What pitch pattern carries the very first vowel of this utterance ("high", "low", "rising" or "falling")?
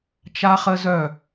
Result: high